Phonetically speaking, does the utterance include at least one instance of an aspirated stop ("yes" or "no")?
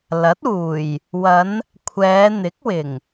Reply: yes